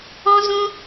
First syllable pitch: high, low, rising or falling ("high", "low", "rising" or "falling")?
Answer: high